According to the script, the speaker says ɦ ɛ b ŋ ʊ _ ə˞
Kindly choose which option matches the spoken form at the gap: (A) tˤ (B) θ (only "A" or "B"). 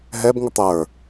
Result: A